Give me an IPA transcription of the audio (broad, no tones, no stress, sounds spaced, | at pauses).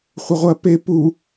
χʷ ə ʁʷ ɐ p e p u